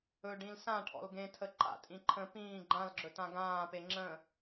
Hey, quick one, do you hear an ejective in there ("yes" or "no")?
yes